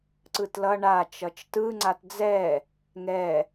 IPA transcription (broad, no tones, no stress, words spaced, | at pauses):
ǀɯtlʌ ɳa t͡ʃʌt͡ʃtɯ ŋ͡ǀatd͡zɛ | ŋɛ